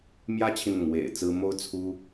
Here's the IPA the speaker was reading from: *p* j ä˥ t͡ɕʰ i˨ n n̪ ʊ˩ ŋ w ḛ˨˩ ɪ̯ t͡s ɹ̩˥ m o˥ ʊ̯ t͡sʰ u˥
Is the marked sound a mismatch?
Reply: yes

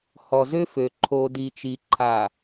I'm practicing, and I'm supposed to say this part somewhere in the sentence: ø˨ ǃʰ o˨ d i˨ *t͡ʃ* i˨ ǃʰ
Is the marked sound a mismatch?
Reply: no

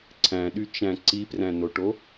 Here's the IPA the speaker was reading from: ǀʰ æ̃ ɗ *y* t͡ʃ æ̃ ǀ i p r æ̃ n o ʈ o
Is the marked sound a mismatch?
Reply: no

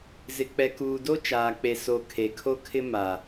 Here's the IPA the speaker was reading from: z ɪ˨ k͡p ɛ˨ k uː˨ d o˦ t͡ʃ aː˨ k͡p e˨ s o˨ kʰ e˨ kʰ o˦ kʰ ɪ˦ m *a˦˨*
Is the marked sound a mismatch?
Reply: yes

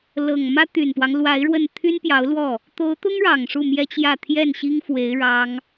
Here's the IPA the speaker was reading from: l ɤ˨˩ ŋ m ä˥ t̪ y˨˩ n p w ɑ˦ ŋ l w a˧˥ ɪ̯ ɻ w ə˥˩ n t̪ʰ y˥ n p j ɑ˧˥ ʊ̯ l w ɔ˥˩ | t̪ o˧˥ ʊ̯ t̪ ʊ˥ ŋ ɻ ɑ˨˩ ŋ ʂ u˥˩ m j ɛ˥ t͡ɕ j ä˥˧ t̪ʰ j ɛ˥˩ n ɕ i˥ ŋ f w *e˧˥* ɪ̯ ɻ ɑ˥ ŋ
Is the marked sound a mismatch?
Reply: no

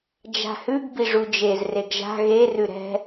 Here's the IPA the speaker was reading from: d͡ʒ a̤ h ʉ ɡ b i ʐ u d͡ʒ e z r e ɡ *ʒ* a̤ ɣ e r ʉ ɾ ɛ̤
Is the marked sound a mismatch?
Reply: no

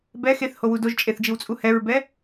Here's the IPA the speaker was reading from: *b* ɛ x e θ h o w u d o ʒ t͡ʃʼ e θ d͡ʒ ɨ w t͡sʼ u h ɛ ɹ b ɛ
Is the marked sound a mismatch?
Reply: no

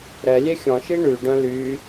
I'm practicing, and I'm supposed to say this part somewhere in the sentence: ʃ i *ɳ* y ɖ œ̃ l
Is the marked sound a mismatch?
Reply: no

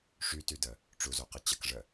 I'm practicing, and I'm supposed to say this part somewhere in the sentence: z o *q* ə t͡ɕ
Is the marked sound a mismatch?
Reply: no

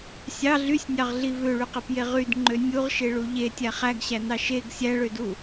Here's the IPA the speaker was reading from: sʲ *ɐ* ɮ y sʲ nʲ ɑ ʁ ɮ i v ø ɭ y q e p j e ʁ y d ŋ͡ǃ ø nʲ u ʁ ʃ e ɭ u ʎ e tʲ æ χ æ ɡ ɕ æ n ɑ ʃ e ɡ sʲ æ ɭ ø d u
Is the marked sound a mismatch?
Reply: yes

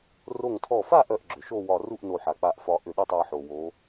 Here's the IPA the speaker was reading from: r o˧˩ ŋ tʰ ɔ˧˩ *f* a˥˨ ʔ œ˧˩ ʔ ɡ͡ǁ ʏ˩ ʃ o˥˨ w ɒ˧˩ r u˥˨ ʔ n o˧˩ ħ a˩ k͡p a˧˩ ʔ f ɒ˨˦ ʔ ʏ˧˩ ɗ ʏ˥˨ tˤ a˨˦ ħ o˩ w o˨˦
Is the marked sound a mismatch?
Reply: no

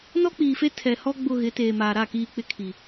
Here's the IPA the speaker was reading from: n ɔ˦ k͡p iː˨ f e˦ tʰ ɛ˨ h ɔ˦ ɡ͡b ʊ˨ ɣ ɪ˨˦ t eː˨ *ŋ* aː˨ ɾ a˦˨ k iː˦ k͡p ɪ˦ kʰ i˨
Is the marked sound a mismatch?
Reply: yes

